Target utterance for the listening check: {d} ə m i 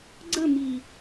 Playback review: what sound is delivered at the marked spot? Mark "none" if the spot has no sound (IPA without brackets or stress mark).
ɡ͡ǀ